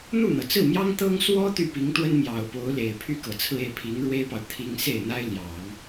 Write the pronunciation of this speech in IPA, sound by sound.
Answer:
n̪ u˥˩ n̪ ɤ˩ t͡s ɹ̩˥˩ m j ɑ˥ ŋ t̪ ɤ˥ ŋ s w ɔ˥ t̪ y˥˩ p i˧˥ ŋ t̪ w ə˥ n m j ɑ˨˩ ʊ̯ p o˧˥ ʊ̯ l e˨˩ ɪ̯ pʰ y˥˩ k ɤ˨˩ t͡sʰ ɹ̩˥˧ e˥˩ ɪ̯ pʰ i˧˥ ŋ ɻ w e˥ ɪ̯ p ɑ˨ ʊ̯ t̪ʰ i˥ ŋ s e˥˩ ɪ̯ n̪ a˥ ɪ̯ l j ɑ˨˩˦ ŋ

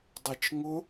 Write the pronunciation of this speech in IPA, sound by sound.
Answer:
dˤ ɛ t͡ʃ ŋ ʊ

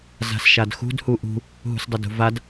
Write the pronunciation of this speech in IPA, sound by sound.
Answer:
z a̤ s ʃ a d x ṳ d h u ʔ ṳ | ɦ ṳ s dˤ ɐ d ṳ v a d

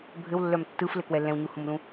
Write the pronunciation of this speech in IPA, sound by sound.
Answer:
bʱ ɘ w lː œ m tː ɯ f l ɘ k w ɛ l ɛ̃ w ɲ u h ũ m l ũ

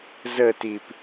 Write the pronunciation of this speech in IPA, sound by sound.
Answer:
z ə t i p

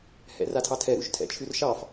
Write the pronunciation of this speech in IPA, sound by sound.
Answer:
h ɛ̰ r a tʰ ɑ tʰ ɛ ɾ ṵ ʃ tʰ ɛ̰ t͡ʃʰ ʉ r ʃ ɑ f

